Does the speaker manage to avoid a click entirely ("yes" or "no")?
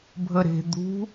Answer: yes